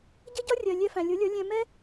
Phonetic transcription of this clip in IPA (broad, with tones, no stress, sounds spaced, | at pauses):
ɟ ʌ˦ ɟ ɒ˦ rʲ ɜ˨ lʲ ɛ˧ f æ̃˨ lʲ ʊ˨˦ lʲ ʌ˨˦ lʲ ɛ̃˧ m ɛ˦